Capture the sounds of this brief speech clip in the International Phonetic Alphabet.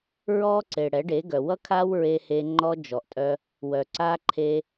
ɹ ɔ˦ ǀ e˨ ɽ ɛ˨˦ ɖ e˨˦ ɡ œ˨ w ʌ˦ kʰ a˦ w ɹ e˧ h e˧ ŋ͡ǃ ɔ˧ d͡ʒ ɔ˨ ʔ tʼ œ˧ | w œ˨ ǀ a˧ ǃʰ e˧

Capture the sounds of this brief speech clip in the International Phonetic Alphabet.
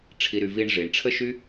ʈ͡ʂʰ i˧ ɾ y˧ v i˧ ɳ ʐ i˨ ɳ ʈ͡ʂʰ ə˦ ʃ y˦

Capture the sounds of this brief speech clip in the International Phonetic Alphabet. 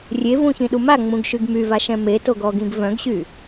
rʲ e v ũ ç ĩ ɗ u m a ŋ͡m ũ ɡ ʃ y ɡ m y v a ʃ ɛ̃ m e t o ɡ ɔ ɡ ĩ ɡ v œ̃ ɡ ɕ y

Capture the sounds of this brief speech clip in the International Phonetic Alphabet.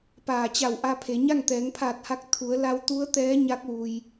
p aː˧˩ t͡ɕ a˧˩ w ʔ a˧ pʰ e˩˧ ɲ a˥˨ ŋ t̪ ɛː˩˧ ŋ pʰ aː˧˩ t̚ h a˧ k̚ t̪ʰ u˩˧ ə̯ l a˧ w t̪ u˧˥ ə̯ t̪ ɛː˧˥ ɲ a˧˥ k̚ ʋ u˩ j

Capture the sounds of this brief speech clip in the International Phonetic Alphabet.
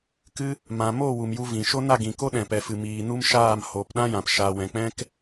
k ɨ˧ | m ã˨ m o˦˨ w u˨ m j u˧ v ĩ˨ ʃ o˦ n a˦˨ ɡ ĩ˨ k o˦ ɗ ɛ̃˨ p ɛ˨ f ɨ˨ m iː˨ n u˦ m ʃ aː˦˨ m h o˨ p ɗ ã˦ j ã˨ p ʃ aː˨ w ɛ̃˨ k͡p ɛ̃˦ k

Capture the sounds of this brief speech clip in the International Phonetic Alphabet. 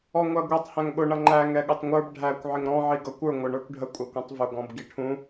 ɔ ŋʷ æ ɡʷ ɛ tˤ h æ̃ ŋ ɠ ʊ ɳ ʌ ŋ͡ǃ æ ŋ ɛ ɠ ʊ tˤ ŋʷ ə˞ b ɖʱ æ kʷ ʕ ɪ ŋ ɾ ɔ̃ ʕ i ɡ ʌ kʷ ə˞ ŋʷ ə ɳ ə˞ kʷ ɖʱ ə kʷʼ æ kʷ ũ tˤ v ʊ ɡ ɔ̃ b ɡ i ʈʰ ũ

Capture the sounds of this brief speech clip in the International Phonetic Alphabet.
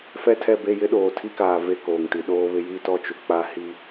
f ɛ˦ tʰ ɛ˦˨ b e˦˨ j ɪ˦ ɗ oː˨ tʰ i˦ k aː˨ v e˦˨ k oː˨ ŋ t i˨ ɗ oː˦ β ɪ˦ j i˦ t ɔ˦ t͡ʃ u˨ k͡p a˦ h i˦

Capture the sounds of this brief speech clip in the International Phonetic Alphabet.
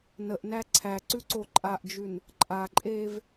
n ə ʔ n æ ǀʰ æ ǀ ʉ ǀ o ǃʼ a ʔ d͡ʒ ʉ n | ǃʼ a ǃʼ eː v

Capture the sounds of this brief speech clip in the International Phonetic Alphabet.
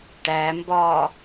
ʈ æ m b ɒː

